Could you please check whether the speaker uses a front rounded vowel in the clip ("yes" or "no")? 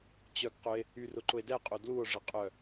yes